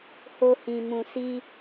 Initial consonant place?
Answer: glottal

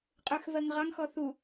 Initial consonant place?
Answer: uvular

